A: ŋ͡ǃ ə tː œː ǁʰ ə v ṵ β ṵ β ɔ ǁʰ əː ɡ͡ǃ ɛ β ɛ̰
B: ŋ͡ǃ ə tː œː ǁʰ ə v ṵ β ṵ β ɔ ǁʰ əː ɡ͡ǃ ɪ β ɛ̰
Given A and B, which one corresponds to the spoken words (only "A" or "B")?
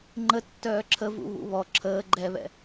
A